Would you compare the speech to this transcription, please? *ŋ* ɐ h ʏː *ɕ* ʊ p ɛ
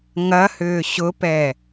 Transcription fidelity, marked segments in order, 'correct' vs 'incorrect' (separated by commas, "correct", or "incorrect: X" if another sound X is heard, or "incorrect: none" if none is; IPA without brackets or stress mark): correct, correct